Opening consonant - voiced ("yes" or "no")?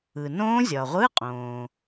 yes